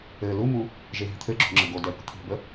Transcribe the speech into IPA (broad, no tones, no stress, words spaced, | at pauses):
ɘ lumu | ʒeɦi̤t̪ʰɘɡ͡ǁo̤ ŋ͡ǁəɡodɛ po̤t̪ʰi̤bə